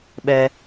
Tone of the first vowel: low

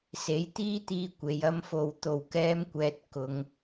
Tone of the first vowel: rising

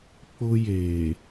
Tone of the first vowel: high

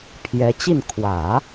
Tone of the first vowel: rising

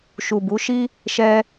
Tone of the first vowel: low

